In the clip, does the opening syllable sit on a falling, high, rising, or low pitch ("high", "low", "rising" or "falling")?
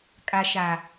low